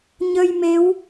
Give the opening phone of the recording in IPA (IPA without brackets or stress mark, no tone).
ɲ